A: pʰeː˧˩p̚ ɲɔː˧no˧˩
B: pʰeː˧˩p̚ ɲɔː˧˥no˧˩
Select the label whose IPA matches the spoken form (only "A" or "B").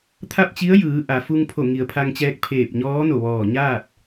B